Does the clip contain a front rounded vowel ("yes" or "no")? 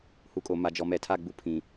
no